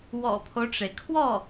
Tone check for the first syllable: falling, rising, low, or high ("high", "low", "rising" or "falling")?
low